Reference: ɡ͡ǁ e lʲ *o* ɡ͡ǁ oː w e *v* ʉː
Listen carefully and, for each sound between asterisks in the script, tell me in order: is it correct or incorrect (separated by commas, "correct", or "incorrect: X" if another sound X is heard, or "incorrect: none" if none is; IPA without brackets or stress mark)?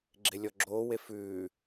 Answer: incorrect: ɔ, incorrect: f